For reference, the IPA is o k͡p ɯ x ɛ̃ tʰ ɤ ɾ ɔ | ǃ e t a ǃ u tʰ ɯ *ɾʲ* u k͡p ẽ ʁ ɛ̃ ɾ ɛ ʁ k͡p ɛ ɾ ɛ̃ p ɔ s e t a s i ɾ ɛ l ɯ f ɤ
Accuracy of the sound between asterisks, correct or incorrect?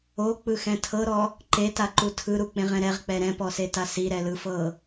incorrect